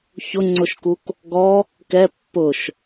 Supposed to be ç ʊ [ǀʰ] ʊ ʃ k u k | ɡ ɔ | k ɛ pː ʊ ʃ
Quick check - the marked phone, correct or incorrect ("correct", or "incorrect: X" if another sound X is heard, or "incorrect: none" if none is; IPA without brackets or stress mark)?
incorrect: ŋ͡ǀ